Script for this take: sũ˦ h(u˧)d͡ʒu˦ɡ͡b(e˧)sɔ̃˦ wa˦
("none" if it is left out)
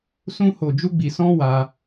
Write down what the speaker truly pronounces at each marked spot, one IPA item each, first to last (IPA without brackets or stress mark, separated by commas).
o˧, i˧